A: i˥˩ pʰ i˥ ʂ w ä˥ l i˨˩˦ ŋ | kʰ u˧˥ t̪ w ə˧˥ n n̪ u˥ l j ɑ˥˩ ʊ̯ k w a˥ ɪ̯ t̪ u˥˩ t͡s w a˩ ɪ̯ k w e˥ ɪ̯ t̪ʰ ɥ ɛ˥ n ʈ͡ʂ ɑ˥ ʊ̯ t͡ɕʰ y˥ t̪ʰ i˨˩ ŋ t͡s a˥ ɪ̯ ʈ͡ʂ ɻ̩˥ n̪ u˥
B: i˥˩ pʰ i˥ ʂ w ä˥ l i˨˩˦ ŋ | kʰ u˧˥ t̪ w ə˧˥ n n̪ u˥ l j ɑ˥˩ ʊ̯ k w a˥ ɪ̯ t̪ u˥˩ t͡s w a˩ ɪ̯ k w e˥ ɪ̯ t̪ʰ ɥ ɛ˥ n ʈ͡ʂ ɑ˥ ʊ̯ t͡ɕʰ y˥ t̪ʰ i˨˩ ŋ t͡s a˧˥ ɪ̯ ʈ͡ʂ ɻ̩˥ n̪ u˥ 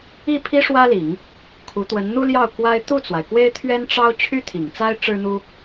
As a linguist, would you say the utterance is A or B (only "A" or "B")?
A